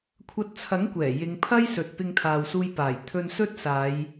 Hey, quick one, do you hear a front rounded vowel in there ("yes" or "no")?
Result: no